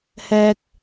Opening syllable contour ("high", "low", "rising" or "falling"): high